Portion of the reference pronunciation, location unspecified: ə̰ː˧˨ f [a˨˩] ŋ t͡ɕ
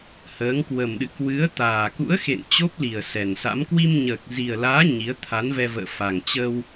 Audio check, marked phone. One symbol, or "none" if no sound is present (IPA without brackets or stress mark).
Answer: a˨˩